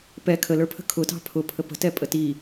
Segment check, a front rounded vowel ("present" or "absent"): absent